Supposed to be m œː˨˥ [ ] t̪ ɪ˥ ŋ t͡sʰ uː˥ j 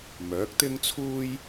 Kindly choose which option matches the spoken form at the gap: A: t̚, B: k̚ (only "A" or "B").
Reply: B